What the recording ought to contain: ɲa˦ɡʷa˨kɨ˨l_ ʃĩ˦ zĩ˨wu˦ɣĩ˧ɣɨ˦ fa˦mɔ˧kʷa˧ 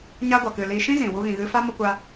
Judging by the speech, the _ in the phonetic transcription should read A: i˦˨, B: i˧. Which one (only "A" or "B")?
B